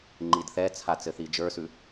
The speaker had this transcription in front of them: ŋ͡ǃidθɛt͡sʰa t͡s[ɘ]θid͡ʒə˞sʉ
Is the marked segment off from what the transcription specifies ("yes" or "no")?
no